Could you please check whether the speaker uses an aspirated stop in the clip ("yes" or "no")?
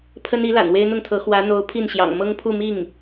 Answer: yes